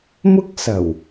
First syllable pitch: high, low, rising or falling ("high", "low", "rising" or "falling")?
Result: high